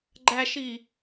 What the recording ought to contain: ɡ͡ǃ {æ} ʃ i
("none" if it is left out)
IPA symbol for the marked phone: æ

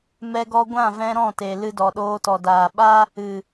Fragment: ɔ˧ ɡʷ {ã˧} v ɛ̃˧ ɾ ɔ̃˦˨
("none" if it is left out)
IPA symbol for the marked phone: ã˦˨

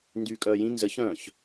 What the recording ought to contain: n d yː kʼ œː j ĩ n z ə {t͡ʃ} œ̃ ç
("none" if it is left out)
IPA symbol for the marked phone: ç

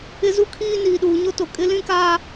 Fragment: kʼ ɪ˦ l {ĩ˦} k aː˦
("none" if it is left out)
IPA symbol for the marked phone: ĩ˦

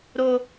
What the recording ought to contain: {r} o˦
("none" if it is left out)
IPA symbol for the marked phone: ɾ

